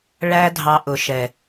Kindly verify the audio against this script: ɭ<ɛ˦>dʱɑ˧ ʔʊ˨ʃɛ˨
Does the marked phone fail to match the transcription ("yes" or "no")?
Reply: yes